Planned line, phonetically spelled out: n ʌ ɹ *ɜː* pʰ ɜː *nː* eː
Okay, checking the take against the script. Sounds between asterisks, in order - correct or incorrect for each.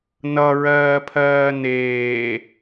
correct, incorrect: n

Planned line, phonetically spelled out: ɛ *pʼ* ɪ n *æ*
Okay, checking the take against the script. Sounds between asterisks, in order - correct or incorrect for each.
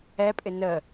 correct, incorrect: ə

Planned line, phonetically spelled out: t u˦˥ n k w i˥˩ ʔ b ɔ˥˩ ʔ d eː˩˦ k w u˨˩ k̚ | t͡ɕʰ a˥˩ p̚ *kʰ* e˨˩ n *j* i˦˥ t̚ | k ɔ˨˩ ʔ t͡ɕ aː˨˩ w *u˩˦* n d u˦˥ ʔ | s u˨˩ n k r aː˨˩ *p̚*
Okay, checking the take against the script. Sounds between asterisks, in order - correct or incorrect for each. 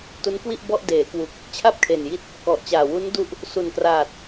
correct, correct, incorrect: u˦˥, incorrect: t̚

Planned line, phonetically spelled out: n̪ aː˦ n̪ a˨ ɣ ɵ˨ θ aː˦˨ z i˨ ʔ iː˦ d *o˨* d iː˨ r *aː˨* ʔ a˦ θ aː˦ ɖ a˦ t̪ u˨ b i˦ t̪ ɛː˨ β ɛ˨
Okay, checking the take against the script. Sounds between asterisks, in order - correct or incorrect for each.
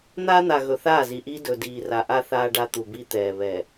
incorrect: ɵ˨, incorrect: a˨

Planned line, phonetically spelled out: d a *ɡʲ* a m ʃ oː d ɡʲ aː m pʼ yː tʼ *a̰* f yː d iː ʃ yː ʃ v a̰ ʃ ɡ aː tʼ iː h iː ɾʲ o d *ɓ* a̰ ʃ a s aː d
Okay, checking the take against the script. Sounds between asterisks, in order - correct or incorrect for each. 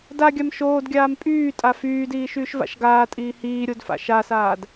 correct, incorrect: a, incorrect: f

